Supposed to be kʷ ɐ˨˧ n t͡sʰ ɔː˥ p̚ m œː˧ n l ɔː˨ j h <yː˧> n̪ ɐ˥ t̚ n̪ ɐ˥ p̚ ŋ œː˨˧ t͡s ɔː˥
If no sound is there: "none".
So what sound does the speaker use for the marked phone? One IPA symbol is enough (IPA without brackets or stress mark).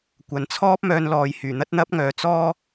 yː˨˩